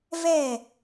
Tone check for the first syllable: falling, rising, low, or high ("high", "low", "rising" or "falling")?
falling